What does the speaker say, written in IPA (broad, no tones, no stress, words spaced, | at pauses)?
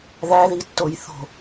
ðæðitːoj θo̤